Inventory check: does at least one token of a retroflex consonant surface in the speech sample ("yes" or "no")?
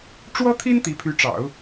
yes